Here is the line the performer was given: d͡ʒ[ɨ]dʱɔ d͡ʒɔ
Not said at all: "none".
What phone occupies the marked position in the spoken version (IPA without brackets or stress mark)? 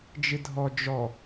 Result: ɨ